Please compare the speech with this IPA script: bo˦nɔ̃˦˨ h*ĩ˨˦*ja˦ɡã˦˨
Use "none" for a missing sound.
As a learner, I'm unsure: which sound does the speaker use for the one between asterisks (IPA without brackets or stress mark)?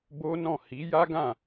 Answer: i˨˦